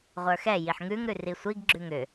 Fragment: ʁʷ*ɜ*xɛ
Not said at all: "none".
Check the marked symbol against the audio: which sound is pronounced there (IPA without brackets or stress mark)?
ə˞